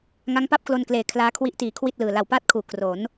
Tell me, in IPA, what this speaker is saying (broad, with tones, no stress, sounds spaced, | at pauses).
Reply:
ŋ a˦˥ ŋ p a˥˩ p̚ k l o˧ n k l eː˨˩ kʰ l aː˦˥ kʰ w i˦˥ ʔ t iː˨˩ kʰ w i˥˩ t̚ l ɯː˨˩ l a˨˩ w p aː˥˩ t̚ kʰ uː˨˩ k r o˩˦ n